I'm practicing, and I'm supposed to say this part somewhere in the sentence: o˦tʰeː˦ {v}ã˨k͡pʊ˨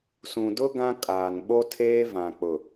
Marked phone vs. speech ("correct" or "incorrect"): correct